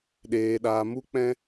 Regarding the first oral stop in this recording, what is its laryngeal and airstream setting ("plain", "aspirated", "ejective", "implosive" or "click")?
implosive